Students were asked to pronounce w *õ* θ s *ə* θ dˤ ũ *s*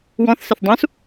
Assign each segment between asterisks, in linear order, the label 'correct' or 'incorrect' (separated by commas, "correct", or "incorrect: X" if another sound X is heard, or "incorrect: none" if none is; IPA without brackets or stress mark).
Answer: incorrect: ɔ̃, incorrect: ɪ, correct